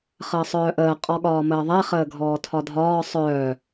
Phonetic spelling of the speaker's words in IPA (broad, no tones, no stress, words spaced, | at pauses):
χəːsˤœːʔəː qʼɔɠɒːməːðˤɛ χəːɡʱɔːtʰɒdʱɒː sˤœː